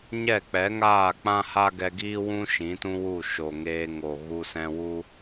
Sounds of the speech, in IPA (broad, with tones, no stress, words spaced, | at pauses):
ɲɛ˦˨k͡pɛ˨˦ŋaː˦˨k͡pã˦ ha˦ɡɛ˧ɡiː˦wũ˦ ʃĩ˨˦tũ˦wu˦˨ ʃo˨ŋeː˧ŋo˨ ɣu˧sɛ̃˧ wu˦